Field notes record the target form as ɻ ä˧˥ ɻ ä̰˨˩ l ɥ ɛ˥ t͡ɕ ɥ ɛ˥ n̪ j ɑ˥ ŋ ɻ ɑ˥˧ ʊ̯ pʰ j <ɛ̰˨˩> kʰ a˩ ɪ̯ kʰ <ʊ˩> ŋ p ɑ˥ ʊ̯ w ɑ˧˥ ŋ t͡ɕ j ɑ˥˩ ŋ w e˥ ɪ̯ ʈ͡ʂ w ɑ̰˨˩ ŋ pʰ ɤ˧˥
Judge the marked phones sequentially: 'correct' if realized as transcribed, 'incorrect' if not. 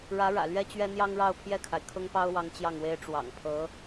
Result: incorrect: ɛ˥˩, incorrect: ʊ˥

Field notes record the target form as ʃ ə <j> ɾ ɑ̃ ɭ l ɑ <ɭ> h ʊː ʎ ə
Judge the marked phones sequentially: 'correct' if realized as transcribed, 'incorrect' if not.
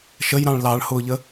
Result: correct, correct

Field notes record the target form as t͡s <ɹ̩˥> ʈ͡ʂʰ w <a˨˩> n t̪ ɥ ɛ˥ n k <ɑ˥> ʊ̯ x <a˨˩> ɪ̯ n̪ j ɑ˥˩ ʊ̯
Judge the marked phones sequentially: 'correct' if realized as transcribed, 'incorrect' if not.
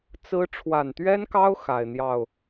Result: correct, correct, correct, correct

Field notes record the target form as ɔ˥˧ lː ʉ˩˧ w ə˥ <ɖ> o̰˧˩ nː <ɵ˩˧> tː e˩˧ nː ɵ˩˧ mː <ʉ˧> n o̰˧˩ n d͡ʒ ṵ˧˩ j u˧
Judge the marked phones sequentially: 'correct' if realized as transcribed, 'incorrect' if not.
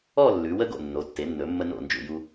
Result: incorrect: ɡ, incorrect: o˩˧, incorrect: ə˧

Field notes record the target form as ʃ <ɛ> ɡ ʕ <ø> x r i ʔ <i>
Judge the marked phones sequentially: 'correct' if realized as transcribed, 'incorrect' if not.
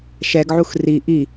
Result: correct, incorrect: u, correct

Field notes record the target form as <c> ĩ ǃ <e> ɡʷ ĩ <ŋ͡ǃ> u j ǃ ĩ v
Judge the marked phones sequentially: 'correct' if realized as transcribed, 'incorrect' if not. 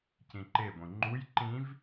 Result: correct, correct, correct

